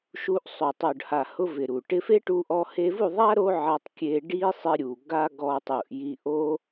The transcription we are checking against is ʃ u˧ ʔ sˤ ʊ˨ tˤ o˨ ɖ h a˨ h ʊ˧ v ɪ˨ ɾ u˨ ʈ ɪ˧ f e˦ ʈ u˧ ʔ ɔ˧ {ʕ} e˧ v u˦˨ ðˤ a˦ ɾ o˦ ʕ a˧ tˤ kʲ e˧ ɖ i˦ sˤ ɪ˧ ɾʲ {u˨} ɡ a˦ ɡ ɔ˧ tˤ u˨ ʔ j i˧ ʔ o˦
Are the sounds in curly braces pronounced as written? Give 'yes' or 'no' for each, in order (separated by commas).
no, yes